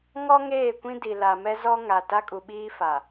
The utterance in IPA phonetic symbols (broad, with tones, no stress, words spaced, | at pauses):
ŋɔ˦ŋeː˦˨kʷĩ˦di˨ la˨mɛ˦zɔ˦ ŋa˨ ta˦kʼu˨ɓiː˦fa˨